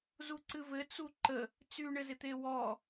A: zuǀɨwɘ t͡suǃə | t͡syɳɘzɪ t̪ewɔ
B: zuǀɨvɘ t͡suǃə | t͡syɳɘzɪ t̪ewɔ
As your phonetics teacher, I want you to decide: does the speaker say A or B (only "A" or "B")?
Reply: B